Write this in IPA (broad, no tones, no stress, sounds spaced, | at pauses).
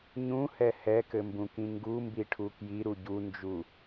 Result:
ɲ ũ h ɛ h ɛ k ɘ m b ũ k ĩ ŋ ɡ u m b i ʈʰ u k j i ɾ u ɟ u n d͡ʒ u